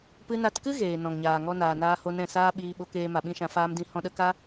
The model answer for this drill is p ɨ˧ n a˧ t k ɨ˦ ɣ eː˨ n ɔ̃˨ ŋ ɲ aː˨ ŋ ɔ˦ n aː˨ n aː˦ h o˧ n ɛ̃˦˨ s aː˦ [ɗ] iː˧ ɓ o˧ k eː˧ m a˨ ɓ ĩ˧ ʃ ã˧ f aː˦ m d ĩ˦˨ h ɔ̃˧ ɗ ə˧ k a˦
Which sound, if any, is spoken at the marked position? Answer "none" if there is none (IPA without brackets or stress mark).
ɓ